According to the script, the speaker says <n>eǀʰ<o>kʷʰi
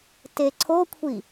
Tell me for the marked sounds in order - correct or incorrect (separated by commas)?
incorrect, correct